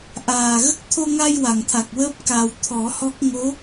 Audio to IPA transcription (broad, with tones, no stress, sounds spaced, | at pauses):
ʔ aː˨˩ ɣ ə˦˥ k̚ t̪ʰ o˧ ŋ a˧ j w a˨˩˨ ŋ t̪ʰ a˨˩ k̚ w əː˦˥ p̚ k a˨˩ w t̪ʰ ɔ˨˩˦ h ɔ˦˥ k̚ ŋ o˧˥